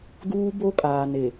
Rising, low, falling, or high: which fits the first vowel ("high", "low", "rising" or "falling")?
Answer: high